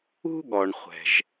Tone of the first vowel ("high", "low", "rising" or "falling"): high